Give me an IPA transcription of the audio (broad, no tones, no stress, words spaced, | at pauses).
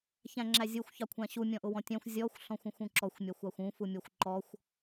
çæ̃ŋ͡ǁæzʲuxʷ çɑkʷʰæ̃ɕu mʲɔ̃ʔʊwɔ̃tʲæ̃xʷ zʲɔxʷ ɬɔ̃xʷũxʷũǁɔxʷ mʲɑxʷɑxʷũ fumʲɔxʷǃɔxʷ